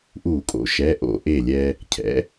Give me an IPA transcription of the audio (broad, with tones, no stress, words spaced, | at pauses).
ʔu˧˩˧kʼo̰˨˥ʃɛ˩˧˩ ʔo̰˧˩˧ʔe˧˩lʲɛ˧ | cʰɛ̰˨˥